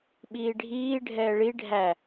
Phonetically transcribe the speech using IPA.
ɓiːɖʱiː ɖʱɛːɭi ɖʱæ

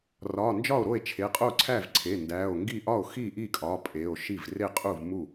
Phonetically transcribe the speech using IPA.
rɒ˩˧˩nd͡ʒɒ˥˩o̯ɾo˥˩e̯ t͡ʃʰe˩˧˩qʼo˥˩ǀʰæ˥˩v ǀʰe˩˧˩ ndæ˩˧˩o̯ŋɡi˥˩ ʔɒ˥˩o̯xi˥˩ʔi˥˩kʼɒ˩˧˩ pʼe˩˧˩o̯ʃi˥˩v re˥˩qʼu˥˩vmu˥˩

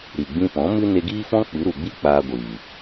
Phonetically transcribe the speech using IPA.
ɾi˨ ɡ͡bĩ˧pɔ̃˨˦mɨ˦ ne˧ɡiː˦fɔ̃˦ k͡pɨ˨˦ɾu˨ɡ͡bi˦ k͡paː˧ɡʷiː˨

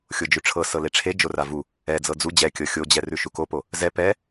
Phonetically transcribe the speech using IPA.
xʲod͡ʒʉʈ͡ʂʰɤsɤ leʈ͡ʂʰe d͡ʒoravu | ɛ d͡zɤd͡zu d͡ʑɛkʲɤ xʲod͡ʑɛ rʉʃukopo | zɛ pɛ

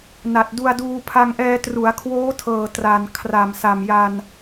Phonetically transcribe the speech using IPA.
na˨˩t̚ du˧a̯duː˧ pʰa˧ŋʔɛː˧ tru˩˦a̯kʰwoː˦˥tʰɤː˨˩ tra˨˩n kʰra˨˩msa˨˩mja˧n

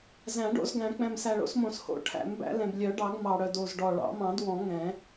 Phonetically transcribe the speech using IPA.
zæ̃˨˩˦ɖo̰˨˩˦zɡæ̃˨˩˦ k͡pɛ̃˨˩msæ˨˩ɭo̰˨˩˦smõ˨˩˦s ho̰˨˩˦ʈʰæ̰˨˩˦mbæ̰˨˩˦ lɛ̃˨˩blʲœ˨˩˦ɖɑ˨˩˦ɡ mɑ˨˩ɽœ˨˩d o˨˩zɖɔ˨˩ ɭɑ̰˨˩˦ mɑ̃˨˩˦dwɔ̃˨˩˦ ŋɛ̃˨˩˦

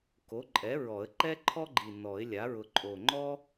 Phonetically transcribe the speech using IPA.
ko˩˥ǃʼɛ˩˥ ɹɔ˨˩˦ə̯ ǃɛ˥ǃʰɔ˥ɡ͡ǃi˨˩ nɔ˨˩˦ɪ̯lʲa˩˥ ɹʊ˨˩ǃʼo˨˩ŋ͡ǃɔ˥

